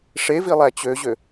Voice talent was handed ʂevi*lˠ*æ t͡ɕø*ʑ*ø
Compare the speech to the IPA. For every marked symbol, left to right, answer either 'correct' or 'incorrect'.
correct, correct

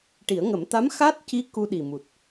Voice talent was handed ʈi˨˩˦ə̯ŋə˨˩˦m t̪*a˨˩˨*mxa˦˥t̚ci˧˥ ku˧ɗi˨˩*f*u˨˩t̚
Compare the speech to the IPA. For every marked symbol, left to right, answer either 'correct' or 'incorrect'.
incorrect: a˧˥, incorrect: m

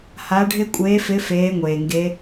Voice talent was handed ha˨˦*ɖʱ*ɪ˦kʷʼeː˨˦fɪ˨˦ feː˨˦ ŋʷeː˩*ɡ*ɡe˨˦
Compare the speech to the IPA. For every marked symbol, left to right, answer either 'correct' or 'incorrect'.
correct, incorrect: ŋ

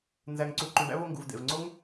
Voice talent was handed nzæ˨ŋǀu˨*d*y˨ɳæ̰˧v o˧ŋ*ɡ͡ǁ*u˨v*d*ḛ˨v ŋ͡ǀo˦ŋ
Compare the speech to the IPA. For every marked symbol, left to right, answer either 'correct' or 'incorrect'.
incorrect: ǃ, incorrect: ɡ, correct

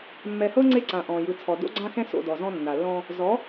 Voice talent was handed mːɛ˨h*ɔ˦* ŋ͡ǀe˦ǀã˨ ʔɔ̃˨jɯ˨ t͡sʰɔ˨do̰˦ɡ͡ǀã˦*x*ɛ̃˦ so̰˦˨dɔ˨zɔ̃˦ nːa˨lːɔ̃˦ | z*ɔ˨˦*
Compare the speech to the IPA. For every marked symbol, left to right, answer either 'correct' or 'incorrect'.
incorrect: ɤ˦, correct, correct

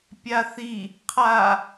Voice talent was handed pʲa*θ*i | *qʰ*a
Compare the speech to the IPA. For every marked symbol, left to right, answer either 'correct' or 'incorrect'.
correct, correct

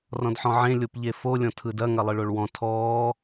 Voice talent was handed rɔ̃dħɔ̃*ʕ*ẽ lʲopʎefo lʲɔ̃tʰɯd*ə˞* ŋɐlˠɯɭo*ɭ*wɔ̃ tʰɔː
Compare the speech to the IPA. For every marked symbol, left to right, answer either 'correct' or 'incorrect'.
correct, incorrect: ɐ, correct

